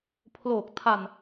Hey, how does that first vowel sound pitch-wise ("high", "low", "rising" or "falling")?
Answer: low